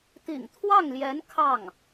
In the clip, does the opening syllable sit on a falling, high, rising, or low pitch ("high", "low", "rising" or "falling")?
low